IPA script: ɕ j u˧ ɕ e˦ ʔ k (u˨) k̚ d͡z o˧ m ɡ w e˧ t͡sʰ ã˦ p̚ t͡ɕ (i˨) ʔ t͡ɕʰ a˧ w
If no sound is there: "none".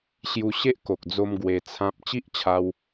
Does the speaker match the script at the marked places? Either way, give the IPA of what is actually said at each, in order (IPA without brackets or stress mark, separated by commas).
o˨, i˦